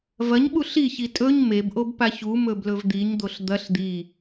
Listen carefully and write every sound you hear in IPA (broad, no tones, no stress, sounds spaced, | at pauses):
v ɐ ɲ ɓ u ɬ i ç i tʼ ɵ ɲ m e b ʔ o b p a ç u m ɵ b l ɵ v d̪ i ɲ d̪ o ɬ d̪ ɐ ɬ d̪ i